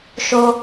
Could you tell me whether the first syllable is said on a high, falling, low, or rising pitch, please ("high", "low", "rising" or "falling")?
high